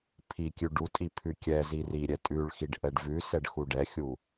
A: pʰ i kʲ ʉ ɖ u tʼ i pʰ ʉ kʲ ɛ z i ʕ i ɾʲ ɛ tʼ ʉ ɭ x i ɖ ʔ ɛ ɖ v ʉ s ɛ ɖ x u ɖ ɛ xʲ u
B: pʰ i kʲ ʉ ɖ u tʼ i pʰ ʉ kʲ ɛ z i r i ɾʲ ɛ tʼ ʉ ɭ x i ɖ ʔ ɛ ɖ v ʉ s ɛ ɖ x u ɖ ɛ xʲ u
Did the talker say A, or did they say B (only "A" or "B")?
B